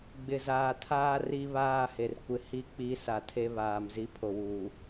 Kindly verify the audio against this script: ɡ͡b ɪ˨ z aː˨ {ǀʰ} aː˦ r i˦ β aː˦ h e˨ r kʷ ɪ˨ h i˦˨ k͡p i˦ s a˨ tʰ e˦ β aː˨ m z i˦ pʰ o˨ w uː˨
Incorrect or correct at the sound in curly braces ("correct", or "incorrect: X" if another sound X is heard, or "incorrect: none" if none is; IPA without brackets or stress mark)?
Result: incorrect: tʰ